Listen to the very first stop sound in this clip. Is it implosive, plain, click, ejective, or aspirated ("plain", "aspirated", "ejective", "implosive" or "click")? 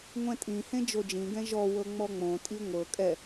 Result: ejective